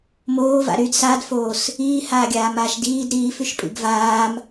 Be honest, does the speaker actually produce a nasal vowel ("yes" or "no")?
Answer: no